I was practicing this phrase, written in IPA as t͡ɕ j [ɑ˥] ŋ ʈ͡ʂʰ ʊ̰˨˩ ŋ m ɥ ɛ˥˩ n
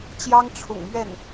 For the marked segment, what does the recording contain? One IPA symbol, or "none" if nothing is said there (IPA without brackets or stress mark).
ɑ˥